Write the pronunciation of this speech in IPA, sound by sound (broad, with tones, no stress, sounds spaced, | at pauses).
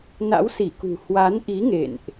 n a̰˧˥ w s i˧˩ k ṳ˨˩ h w a˨˦ n ʔ i˨˦ ŋ ḛ˧˨ n ʔ